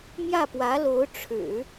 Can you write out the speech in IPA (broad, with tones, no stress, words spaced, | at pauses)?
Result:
mjä˥˩pwä˧˥lo˧˥ʊ̯ ʈ͡ʂʰɻ̩˨˩˦